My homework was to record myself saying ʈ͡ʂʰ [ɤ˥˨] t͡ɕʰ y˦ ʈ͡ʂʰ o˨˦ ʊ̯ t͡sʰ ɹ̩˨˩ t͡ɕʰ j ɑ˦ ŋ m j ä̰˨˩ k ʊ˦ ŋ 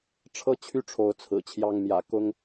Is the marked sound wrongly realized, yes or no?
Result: yes